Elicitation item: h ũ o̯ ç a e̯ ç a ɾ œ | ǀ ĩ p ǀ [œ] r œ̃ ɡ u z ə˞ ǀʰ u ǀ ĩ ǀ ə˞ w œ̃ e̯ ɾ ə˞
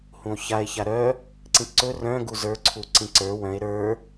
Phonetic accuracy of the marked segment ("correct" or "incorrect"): incorrect